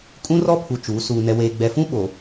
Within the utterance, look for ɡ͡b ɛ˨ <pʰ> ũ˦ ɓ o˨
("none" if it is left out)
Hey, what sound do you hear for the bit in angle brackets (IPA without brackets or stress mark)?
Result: f